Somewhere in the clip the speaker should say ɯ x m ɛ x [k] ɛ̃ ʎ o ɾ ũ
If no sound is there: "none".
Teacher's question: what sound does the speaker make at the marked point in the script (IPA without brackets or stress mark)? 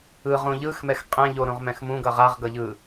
qʼ